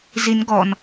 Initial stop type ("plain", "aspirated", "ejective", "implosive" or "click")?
plain